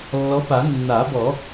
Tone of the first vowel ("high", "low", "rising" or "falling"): rising